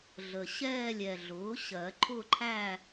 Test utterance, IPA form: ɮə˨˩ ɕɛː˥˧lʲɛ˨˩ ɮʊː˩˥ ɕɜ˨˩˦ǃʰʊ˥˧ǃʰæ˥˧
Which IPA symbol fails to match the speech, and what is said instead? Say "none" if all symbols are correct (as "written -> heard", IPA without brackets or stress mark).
none